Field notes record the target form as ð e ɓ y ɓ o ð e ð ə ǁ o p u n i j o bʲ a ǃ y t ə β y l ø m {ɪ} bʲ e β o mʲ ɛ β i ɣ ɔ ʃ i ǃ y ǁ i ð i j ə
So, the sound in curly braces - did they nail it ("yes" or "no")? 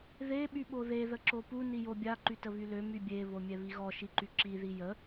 no